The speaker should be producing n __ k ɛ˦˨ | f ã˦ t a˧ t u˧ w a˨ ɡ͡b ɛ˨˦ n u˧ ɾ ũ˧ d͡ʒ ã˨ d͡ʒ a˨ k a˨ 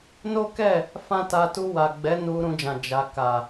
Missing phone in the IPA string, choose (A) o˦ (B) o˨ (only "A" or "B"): A